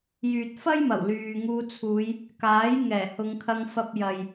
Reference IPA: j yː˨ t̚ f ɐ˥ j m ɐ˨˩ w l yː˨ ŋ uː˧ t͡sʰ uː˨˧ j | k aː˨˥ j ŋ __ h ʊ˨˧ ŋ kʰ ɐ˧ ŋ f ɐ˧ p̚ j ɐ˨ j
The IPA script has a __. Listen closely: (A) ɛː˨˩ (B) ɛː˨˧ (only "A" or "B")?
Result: A